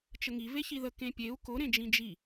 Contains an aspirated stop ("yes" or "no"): no